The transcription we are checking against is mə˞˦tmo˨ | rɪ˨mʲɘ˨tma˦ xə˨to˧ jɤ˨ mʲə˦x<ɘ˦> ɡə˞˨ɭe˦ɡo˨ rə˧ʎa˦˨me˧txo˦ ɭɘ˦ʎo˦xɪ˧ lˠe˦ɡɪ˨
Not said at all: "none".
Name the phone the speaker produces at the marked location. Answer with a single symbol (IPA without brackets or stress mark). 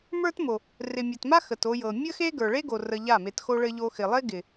e˦